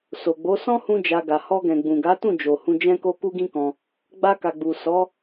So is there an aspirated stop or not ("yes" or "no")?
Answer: no